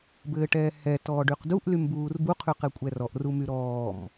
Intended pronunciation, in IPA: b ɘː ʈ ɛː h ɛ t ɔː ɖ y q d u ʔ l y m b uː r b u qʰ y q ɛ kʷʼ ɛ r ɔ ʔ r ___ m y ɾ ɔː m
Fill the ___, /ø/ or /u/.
u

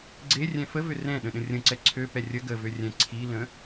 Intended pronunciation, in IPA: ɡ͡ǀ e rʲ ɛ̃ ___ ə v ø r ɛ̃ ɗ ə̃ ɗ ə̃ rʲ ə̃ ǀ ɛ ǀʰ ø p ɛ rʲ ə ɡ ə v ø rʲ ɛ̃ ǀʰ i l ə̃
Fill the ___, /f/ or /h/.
f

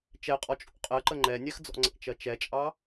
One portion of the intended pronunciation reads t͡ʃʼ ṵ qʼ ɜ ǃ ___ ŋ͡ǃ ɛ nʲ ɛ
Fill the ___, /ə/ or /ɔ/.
ə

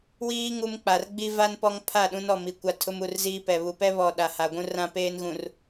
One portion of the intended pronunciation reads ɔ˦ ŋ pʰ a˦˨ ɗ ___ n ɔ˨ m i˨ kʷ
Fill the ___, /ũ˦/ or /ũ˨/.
ũ˦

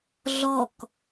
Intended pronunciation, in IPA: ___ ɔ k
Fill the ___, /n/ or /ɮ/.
ɮ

